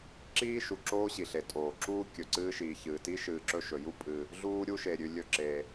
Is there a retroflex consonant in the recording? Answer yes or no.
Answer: no